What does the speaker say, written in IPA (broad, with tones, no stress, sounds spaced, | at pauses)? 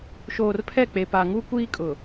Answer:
ʃ oː˨ r pʰ ɛ˦˨ k͡p e˨ p a˨ ŋ u˦ kʷ iː˦ kʼ ʊ˨